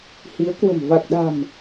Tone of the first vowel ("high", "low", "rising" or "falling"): rising